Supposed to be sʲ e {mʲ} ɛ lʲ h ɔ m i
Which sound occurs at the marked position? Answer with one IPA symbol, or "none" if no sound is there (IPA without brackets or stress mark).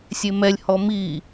m